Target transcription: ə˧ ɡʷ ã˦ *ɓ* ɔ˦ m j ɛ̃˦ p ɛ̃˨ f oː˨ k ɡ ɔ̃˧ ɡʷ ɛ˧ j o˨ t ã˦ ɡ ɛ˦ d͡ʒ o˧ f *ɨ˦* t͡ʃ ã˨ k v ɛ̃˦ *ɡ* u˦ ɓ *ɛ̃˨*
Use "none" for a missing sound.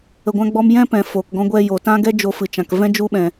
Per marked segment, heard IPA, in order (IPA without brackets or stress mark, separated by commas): ɡ͡b, ɨ˨, d͡ʒ, ɛ̃˨